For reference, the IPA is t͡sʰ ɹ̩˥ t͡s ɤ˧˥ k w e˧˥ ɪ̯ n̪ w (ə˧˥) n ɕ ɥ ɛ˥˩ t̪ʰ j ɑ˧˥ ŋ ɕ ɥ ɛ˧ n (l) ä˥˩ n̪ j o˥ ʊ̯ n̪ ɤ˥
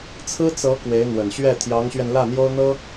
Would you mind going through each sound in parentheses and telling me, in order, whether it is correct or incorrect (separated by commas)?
incorrect, correct